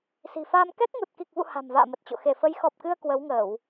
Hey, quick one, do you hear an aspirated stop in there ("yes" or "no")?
no